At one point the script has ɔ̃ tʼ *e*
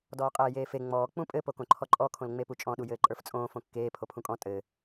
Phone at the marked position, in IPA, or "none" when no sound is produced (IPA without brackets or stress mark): ɘ